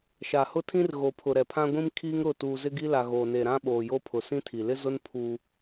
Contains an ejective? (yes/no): no